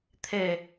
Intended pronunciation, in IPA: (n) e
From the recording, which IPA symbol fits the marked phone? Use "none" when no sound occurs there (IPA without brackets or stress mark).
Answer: t̪ʰ